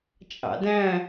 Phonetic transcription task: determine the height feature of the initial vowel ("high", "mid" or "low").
low